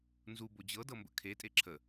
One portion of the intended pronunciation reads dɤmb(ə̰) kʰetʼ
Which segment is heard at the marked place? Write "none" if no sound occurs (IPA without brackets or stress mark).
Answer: ə̰